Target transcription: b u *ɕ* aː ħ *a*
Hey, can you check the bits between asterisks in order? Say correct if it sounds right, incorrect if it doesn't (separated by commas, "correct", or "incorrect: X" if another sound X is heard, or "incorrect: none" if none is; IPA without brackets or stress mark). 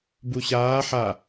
correct, correct